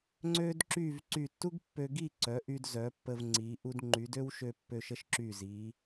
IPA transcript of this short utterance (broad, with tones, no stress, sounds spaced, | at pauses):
ŋ͡ǀ ø˥ d ǁ y˥˧ v ǀ y˧˩ tː u˥ ɡ pː ø˧ ɡ i˥˧ ǀ œ˩˧ ʔ y˧ d z œ˩˧ pː ə˧ v ŋ͡ǀ i˩˧ ʔ u˧ d ŋ͡ǃ y˩˧ d ø˥ w ʃ ø˧ pː ø˧ ʃ ə˥ ʃ ǁ y˧˩ z i˩˧